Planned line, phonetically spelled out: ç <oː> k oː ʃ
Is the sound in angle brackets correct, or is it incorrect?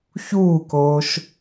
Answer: incorrect